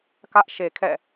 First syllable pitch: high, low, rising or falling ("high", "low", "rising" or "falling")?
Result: high